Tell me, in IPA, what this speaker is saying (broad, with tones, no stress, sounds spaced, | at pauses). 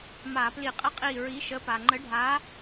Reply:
m a˧˩˧ p l i˧˩˧ qʼ ə˥ qʼ i˧˩ ɹ i˨˥ ʃ ə˨˥ p a˩ ŋ͡ǃ ə˨˥ ɖʱ a˨˥